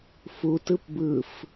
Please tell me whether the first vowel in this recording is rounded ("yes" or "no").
yes